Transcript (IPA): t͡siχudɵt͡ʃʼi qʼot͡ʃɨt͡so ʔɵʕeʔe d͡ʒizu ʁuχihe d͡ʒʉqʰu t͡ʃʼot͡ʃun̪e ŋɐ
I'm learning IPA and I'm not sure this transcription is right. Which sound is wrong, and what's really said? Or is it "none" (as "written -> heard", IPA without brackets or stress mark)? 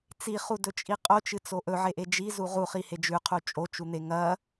none